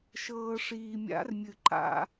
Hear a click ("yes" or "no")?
yes